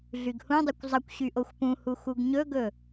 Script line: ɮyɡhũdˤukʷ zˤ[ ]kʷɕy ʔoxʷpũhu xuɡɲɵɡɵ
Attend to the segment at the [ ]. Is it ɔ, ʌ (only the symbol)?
ʌ